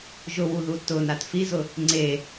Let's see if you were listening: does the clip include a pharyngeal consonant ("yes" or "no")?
no